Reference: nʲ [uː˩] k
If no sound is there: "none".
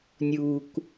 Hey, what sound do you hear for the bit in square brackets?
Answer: uː˩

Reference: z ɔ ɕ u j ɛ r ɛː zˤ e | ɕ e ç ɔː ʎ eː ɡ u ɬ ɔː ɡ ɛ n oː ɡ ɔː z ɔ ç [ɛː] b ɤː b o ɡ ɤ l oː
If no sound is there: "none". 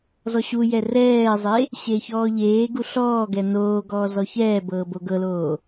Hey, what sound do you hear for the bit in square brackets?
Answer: ɛː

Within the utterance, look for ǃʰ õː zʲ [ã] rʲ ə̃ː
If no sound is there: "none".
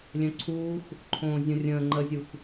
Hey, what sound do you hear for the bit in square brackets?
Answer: ə̃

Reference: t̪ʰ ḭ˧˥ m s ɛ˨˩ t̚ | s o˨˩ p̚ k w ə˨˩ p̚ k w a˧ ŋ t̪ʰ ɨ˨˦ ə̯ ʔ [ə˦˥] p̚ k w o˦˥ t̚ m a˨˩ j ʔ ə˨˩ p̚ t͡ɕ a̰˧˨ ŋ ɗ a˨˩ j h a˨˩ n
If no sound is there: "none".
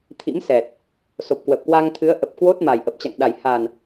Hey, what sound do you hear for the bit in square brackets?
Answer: ə˨˩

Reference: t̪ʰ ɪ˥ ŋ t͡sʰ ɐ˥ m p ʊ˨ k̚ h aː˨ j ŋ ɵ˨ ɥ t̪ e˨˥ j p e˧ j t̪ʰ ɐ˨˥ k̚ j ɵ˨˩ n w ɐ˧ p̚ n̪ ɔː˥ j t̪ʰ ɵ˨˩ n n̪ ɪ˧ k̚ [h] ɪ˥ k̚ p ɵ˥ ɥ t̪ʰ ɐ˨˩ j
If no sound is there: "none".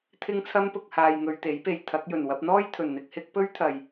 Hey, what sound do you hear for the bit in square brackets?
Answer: h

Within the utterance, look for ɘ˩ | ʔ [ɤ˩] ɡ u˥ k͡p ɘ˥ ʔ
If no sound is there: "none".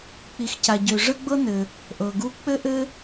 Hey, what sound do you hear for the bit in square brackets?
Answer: ɤ˩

